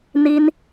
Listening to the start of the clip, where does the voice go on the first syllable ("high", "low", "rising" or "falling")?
high